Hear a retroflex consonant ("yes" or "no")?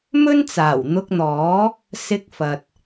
no